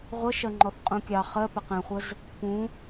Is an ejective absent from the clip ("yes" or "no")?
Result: no